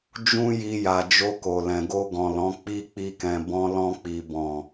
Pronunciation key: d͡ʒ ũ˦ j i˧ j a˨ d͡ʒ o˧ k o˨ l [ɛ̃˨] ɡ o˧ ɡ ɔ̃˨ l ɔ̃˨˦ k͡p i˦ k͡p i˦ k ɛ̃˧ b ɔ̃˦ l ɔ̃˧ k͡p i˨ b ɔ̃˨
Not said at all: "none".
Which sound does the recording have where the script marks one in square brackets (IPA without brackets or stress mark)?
ɛ̃˨